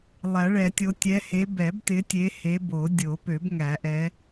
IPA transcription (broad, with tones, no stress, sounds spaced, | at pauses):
lˠ æ˨˩˦ ɭ ɛ˨˩˦ tʲ o˨˦ tʲ ɛ˨˦ h e˨˦ b ɛ˨˩˦ b t ɪ˨˦ tʲ e˨˦ h e˨˦ b o˨˩˦ dʲ o˨˩˦ p ø˨˩˦ b ŋ æ˨˩˦ ʔ ɛ˨˦